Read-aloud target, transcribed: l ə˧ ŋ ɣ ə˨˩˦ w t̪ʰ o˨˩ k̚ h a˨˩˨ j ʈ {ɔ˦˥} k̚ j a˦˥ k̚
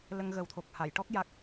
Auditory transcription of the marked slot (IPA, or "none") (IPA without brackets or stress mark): ɔ˦˥